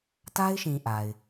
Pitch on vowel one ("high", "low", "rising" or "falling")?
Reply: high